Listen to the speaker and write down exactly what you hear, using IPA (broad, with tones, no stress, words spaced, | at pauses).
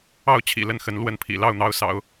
ɑ˥˩ʊ̯t͡ɕʰḭ˨˩ lə˥˩nxə˧˥n lwə˥˩npʰḭ˨˩ lɑ˥˩ʊ̯n̪ɑ˧˥ʊ̯sɑ̰˨˩˦ʊ̯